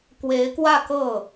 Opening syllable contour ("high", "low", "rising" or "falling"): rising